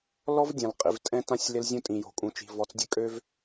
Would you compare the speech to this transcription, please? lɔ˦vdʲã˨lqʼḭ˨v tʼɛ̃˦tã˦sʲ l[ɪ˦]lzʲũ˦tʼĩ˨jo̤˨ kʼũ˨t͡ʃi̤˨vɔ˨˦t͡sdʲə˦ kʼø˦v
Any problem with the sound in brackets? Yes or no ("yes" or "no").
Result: no